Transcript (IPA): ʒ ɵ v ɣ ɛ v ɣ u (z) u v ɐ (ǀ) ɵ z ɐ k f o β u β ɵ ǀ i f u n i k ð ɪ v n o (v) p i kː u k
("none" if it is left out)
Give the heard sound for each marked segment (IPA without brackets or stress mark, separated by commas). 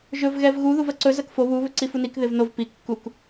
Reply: ð, ǀ, v